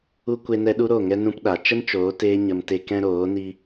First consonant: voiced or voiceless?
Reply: voiceless